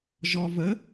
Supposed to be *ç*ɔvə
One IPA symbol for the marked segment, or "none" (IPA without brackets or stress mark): ʒ